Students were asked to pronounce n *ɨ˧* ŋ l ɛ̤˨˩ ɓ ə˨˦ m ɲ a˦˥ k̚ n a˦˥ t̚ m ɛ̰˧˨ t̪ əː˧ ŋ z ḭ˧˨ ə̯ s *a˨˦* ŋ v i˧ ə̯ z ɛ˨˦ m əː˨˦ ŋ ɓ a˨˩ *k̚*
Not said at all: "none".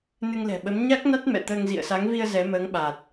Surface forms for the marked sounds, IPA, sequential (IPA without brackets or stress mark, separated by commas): ɨ˧, a˨˦, t̚